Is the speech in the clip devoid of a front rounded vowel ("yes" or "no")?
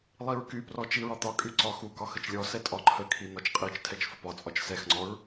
no